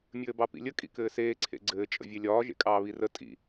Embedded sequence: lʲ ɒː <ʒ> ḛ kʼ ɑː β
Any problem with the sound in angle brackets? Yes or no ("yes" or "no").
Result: no